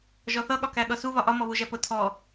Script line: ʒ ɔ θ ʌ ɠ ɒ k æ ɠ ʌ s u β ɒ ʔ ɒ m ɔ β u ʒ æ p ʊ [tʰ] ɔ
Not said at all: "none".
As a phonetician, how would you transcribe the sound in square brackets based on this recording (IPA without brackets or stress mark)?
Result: tʰ